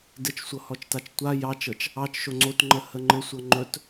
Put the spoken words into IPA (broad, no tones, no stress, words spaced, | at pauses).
dɘt͡ʃsʷɤhɔt͡ʃtat͡ʃ tʷa jɑt͡ʃɤt͡ʃ | ɑt͡ʃʃo ŋ͡ǀotŋ͡ǃəhə ŋ͡ǃɘsʷɤ ŋ͡ǃɵt